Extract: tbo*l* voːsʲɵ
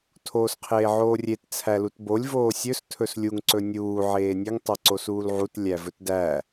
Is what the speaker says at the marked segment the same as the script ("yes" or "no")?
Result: no